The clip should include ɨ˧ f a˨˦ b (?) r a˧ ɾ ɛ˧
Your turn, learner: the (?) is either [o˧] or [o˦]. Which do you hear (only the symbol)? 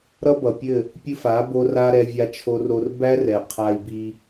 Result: o˧